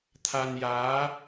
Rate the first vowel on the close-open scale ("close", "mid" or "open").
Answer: open